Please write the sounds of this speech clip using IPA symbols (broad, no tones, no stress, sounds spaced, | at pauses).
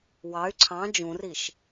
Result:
w ɑ y̯ ǀʰ ɑ̃ d͡ʒ ũ r i ʃ